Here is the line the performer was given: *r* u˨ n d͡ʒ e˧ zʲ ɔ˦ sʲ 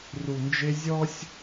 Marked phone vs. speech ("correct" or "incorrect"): correct